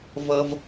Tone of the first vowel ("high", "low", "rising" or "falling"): high